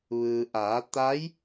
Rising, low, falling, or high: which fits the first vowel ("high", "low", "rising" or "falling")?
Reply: low